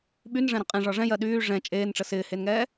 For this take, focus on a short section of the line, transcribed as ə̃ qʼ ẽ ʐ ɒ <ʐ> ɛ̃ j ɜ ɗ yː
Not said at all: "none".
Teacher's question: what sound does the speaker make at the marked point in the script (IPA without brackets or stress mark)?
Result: ʐ